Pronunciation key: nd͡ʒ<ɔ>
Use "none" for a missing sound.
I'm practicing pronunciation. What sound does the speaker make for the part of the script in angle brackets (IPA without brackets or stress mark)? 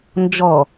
ɔ